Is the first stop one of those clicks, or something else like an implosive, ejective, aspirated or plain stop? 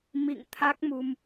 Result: aspirated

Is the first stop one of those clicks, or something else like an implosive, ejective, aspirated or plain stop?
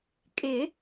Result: ejective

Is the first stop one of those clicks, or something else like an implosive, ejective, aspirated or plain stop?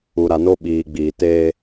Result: implosive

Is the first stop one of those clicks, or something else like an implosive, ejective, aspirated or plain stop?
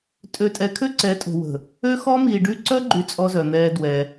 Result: ejective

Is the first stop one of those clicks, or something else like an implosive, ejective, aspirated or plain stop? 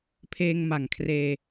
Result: aspirated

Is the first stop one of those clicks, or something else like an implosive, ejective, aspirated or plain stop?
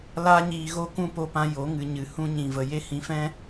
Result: plain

